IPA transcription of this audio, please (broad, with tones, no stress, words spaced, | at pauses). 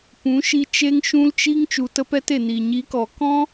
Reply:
pũ˨˦ʃi˧ t͡ʃe˦ŋʃũ˦lt͡ʃi˦ŋ t͡ʃu˨tə˧pɛ˧te˨ ni˨ɲi˨˦kɔ˨ kɔ̃˦